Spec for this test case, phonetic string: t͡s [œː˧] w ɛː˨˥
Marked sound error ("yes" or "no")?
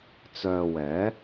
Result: no